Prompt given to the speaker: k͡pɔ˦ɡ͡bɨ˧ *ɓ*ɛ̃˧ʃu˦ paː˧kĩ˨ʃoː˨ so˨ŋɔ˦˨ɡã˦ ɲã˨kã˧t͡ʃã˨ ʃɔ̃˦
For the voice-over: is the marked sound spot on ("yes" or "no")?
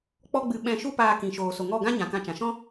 yes